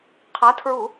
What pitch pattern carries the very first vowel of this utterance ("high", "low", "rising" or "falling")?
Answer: rising